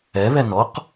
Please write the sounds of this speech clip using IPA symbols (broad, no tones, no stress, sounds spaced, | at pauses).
ɛ β ɛ n ɔ q